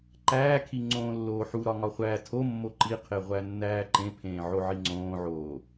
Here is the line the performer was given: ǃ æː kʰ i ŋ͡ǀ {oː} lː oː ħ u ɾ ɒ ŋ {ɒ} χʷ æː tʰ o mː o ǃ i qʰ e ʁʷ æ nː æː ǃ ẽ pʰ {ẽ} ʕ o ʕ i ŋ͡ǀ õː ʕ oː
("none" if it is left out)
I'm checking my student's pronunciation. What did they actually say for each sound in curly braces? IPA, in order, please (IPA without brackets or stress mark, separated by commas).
õː, ɒ, ẽː